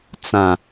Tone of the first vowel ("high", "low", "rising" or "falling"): low